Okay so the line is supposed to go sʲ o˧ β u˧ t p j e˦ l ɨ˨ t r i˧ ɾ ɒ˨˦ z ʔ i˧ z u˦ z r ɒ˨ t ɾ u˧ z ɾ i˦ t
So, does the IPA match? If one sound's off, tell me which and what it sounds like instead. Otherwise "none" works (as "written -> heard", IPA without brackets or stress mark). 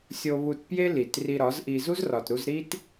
ɨ˨ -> i˨